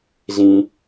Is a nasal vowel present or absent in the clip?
present